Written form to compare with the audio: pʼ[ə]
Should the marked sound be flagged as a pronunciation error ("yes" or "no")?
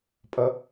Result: yes